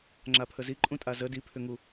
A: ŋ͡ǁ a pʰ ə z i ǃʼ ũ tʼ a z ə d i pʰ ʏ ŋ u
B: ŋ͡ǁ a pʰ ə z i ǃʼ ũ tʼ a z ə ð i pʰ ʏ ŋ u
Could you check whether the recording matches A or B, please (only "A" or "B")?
A